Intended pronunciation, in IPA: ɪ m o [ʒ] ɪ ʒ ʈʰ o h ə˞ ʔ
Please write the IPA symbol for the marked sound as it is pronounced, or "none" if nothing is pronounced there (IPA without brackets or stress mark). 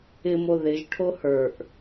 ð